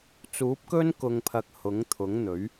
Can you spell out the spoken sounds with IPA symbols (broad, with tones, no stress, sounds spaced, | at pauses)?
t͡s uː˨˥ p̚ k ɵ˥ n k ʊ˨ ŋ pʰ ɐ˨ k̚ h ʊ˨˥ ŋ t̪ʰ ʊ˨˥ ŋ n̪ ɵ˨˥ ɥ